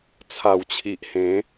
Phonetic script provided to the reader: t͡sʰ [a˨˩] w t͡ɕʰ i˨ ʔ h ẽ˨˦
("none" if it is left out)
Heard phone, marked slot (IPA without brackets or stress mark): a˨˩